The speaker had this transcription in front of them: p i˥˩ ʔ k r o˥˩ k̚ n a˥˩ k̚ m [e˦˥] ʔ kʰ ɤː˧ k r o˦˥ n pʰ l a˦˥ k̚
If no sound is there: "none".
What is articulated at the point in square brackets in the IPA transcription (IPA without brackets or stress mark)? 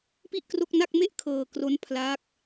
e˥˩